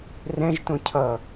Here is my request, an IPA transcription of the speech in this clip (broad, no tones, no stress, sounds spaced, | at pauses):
r ɛ̃ ʒ t õ cʰ ʌ